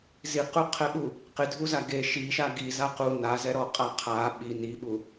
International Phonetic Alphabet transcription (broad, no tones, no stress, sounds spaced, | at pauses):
z i q u qʰ ɛ ɓ u | q ɪ dʱ u z a ɡ e ʃ i ʃ a ɡ i z a q u n a z ɛ ɾ ɔ qʼ a qʰ a ɓ i n i ɓ u